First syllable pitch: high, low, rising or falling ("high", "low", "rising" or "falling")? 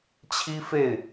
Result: high